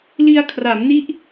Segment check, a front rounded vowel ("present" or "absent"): absent